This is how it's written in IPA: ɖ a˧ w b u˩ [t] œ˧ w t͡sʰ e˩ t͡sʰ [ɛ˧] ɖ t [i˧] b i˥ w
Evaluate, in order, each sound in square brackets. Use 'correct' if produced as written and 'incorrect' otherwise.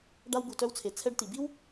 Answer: correct, correct, incorrect

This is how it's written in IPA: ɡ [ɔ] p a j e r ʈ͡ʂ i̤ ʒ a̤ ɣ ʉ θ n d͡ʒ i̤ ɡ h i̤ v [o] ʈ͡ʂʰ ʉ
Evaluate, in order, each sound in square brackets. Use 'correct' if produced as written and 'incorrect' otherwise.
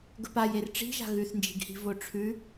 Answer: incorrect, correct

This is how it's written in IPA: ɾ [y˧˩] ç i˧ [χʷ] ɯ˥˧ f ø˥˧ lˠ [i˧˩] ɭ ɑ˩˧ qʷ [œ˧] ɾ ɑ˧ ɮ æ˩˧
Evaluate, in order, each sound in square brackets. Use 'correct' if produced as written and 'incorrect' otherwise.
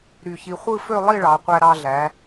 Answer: correct, correct, incorrect, incorrect

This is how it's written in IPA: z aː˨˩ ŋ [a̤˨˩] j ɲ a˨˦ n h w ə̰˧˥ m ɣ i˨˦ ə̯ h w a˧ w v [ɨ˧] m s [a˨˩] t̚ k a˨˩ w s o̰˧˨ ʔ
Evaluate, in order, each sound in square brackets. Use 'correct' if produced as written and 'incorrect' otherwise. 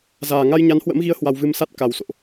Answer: incorrect, correct, incorrect

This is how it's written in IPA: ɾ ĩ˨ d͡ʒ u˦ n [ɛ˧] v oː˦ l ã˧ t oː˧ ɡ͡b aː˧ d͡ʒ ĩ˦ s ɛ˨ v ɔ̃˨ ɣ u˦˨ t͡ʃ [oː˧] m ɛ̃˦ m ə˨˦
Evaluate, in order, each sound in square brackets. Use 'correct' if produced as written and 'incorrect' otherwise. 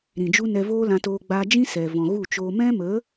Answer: correct, correct

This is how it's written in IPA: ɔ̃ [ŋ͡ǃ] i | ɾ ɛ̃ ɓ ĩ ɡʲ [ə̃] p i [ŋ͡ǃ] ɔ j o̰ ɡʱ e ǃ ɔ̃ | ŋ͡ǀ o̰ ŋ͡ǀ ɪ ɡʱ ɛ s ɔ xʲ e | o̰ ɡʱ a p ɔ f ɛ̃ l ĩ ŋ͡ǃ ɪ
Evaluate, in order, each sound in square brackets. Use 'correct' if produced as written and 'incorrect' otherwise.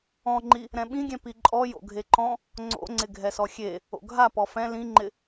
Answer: correct, incorrect, incorrect

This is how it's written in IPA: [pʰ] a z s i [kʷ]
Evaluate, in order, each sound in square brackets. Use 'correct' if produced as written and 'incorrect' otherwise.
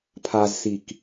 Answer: correct, incorrect

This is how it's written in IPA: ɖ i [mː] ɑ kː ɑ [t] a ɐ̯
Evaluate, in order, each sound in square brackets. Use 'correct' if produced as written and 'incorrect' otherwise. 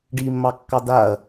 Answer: correct, incorrect

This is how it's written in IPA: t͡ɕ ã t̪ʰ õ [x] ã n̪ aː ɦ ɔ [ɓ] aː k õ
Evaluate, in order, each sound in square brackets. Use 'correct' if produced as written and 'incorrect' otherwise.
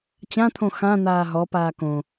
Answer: correct, incorrect

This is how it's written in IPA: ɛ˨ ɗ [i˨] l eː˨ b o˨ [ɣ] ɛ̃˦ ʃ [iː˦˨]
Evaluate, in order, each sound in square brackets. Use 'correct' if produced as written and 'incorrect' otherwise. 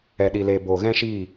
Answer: correct, correct, correct

